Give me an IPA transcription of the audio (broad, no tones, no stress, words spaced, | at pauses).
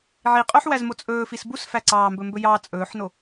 ʕiqʼœħ wæzmot͡sʼɵːfis bus fæǀɑːmbɵ mbɵjɑ t͡sʼɵːħno